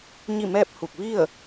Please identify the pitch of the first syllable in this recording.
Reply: falling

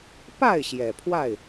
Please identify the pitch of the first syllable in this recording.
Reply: falling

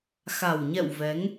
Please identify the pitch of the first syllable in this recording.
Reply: low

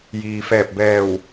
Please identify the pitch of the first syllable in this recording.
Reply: low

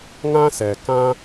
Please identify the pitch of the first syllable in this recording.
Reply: high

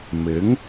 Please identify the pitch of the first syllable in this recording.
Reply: rising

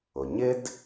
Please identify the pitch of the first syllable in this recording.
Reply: low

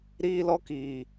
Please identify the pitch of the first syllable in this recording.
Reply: high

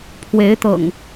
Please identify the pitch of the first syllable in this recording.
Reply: rising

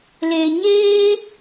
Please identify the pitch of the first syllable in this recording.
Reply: low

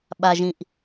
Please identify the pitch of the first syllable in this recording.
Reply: low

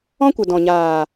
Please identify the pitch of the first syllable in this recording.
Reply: high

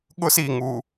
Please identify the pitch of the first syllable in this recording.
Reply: high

